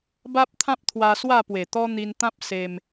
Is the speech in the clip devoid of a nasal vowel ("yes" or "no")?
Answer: no